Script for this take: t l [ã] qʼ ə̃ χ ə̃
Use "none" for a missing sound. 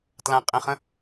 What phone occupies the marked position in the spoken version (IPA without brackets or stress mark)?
ã